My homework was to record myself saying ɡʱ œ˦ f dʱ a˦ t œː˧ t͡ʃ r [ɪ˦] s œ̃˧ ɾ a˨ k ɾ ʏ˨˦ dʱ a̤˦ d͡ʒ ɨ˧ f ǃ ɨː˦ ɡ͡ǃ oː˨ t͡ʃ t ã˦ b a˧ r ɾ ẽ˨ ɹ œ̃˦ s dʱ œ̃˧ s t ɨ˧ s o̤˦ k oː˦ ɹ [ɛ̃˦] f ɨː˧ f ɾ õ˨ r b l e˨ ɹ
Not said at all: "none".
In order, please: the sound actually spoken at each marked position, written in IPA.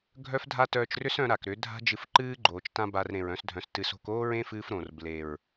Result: ʏ˦, ẽ˦

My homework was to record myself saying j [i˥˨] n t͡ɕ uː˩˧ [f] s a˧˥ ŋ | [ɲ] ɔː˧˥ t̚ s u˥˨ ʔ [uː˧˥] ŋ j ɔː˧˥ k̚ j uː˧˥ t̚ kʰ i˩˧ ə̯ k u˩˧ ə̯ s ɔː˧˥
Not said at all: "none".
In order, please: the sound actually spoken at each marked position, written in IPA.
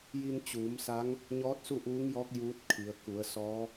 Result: i˧, m, ɲ, uː˧˥

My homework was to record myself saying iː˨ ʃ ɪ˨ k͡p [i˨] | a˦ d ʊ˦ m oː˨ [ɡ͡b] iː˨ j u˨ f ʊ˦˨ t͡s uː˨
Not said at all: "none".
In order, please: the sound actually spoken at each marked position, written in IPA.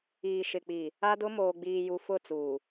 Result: i˨, ɡ͡b

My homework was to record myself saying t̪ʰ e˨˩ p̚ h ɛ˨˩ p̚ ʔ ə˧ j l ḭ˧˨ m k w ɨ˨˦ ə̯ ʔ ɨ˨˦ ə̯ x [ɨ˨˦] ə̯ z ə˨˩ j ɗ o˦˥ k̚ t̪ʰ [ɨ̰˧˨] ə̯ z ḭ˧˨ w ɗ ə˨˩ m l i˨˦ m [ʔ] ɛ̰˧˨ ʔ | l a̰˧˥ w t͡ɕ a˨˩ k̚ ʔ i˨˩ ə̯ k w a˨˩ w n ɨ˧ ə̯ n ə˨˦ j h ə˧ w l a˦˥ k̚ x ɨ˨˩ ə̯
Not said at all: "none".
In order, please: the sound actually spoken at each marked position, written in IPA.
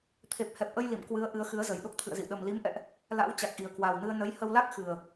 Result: ɨ˨˦, ɨ̰˧˨, ʔ

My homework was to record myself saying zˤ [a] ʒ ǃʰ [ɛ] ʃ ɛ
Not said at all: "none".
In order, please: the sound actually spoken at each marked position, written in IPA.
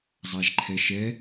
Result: a, ɛ

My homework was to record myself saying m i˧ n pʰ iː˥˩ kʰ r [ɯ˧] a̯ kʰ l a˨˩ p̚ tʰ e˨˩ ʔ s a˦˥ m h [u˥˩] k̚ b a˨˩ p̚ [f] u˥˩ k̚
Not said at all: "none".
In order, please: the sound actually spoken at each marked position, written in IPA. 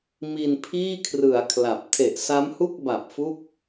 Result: ɯ˩˦, u˥˩, f

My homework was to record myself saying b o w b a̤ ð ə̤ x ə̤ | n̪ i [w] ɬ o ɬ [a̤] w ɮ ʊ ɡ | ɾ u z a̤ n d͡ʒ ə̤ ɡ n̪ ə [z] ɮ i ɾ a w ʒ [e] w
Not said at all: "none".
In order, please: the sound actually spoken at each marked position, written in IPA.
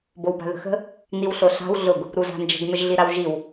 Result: w, a̤, ʒ, i

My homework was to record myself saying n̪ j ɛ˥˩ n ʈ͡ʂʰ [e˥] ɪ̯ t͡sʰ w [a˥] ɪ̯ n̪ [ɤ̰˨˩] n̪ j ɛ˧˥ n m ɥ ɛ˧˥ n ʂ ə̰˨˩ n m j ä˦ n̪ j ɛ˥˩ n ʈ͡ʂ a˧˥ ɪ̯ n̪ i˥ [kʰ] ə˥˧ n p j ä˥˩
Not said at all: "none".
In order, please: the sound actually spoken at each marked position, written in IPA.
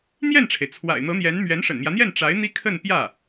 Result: e˩, a̰˨˩, ɤ˧˥, kʰ

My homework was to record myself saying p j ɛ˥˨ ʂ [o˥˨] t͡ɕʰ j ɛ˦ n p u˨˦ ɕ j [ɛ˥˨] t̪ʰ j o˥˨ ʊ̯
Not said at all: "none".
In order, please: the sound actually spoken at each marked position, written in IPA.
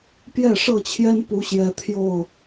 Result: ɤ˥˨, ɛ˨˦

